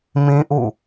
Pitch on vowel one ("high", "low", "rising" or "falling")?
high